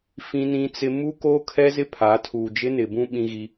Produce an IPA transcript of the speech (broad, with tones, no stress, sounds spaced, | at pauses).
f ĩ˦ n ĩ˦ t͡s ɪ˦ m u˦ k oː˦ kʰ ɛ˦ z ɪ˦ pʰ a˨˦ tʰ uː˨ d͡ʒ ɪ˦ n ɪ˨ b ũ˦ ɓ ĩ˦ ɣ i˦